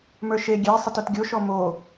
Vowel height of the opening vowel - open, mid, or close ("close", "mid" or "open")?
mid